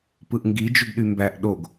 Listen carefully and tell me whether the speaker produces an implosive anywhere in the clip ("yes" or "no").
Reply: yes